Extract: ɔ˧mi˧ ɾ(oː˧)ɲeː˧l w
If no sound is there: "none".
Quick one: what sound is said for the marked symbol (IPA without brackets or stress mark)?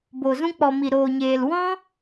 oː˧